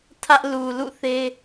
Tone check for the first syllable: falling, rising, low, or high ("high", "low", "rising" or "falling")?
high